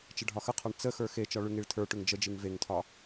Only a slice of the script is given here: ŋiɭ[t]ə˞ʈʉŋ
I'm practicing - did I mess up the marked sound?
yes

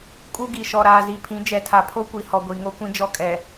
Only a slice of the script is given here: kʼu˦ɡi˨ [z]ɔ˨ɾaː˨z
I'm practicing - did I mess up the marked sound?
yes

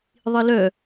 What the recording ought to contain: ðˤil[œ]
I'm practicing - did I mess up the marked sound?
no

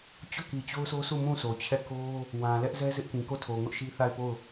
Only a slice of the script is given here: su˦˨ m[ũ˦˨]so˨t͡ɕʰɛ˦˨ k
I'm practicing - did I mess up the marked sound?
no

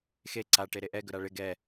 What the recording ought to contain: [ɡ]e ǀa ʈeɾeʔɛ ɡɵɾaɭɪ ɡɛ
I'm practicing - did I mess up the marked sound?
yes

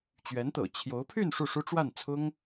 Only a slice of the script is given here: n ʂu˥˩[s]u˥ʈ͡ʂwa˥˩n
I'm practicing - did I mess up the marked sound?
yes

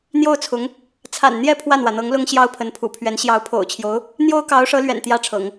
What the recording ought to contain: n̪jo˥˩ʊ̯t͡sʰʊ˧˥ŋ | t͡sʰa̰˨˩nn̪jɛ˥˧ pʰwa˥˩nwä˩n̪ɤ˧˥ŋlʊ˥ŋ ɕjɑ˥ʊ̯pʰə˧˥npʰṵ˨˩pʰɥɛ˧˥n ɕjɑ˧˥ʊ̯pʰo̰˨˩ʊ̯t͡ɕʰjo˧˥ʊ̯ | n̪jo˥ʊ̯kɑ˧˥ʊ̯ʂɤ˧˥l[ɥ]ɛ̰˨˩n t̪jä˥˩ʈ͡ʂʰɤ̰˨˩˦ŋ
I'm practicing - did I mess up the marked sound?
no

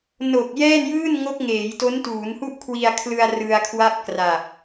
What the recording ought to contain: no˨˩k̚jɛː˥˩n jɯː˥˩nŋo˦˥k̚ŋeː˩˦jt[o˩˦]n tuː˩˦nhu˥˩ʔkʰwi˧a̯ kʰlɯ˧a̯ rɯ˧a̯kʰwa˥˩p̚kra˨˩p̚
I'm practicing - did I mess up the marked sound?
yes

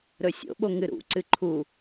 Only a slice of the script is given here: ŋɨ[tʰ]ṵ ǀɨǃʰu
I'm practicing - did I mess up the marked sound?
yes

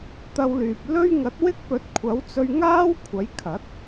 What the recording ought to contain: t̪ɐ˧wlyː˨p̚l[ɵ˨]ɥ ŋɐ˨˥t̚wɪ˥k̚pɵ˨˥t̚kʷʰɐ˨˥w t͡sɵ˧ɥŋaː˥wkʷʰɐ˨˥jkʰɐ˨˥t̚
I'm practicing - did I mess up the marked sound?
yes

